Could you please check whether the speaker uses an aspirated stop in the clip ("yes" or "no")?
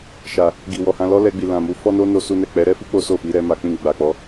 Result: no